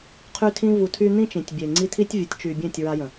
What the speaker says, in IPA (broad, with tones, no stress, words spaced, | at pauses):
qʰy˧tʰĩ˧vu˨tʰy˧ n̪ĩ˦t͡ʃĩ˨tʲbʲe˨ ŋ͡ǀi˧tʰi˦tʲ vʲu˨tʲt͡ʃy˨bʲẽ˦˨tʲ ɹa˧jə̃˨